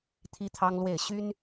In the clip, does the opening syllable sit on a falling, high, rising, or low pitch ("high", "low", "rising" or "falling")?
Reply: high